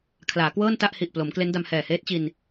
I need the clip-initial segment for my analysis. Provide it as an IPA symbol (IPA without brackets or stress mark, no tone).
kʰ